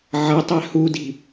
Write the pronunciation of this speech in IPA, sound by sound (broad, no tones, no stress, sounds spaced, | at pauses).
ʕ ʌ tˤ ɛ h u d i̤